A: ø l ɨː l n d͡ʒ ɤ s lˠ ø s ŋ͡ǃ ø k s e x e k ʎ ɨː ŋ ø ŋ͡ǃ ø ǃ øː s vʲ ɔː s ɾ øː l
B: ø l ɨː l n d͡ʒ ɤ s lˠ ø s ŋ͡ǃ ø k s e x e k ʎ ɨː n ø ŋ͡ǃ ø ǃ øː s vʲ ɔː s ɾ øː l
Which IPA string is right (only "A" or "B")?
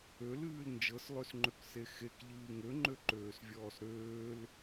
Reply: A